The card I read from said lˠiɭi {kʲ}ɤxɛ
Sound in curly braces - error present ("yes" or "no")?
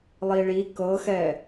yes